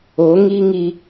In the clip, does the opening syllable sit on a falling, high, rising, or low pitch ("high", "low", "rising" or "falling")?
rising